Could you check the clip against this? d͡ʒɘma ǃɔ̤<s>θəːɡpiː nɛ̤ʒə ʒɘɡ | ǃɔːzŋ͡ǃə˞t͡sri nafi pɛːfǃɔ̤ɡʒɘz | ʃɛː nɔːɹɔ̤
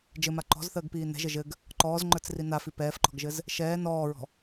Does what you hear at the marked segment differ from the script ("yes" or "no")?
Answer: yes